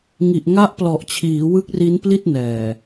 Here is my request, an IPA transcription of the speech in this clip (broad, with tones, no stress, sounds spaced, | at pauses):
ŋ i˨˩ ʔ ŋ a˦˥ ʔ p l ɔ˨˩ ʔ t͡ɕʰ iː˩˦ w ɯ˦˥ k̚ r i˦˥ n p l i˥˩ t̚ n ɛː˨˩